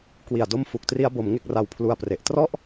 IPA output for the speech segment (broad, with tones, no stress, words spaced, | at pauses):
kwi˨˩a̯do˥˩mfu˨˩k̚tri˦˥a̯ bo˩˦m ŋe˦˥k̚ra˧wpʰlu˧a̯pre˨˩ʔ trɔ˥˩ʔ